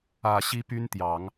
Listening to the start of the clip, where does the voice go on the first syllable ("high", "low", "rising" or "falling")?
low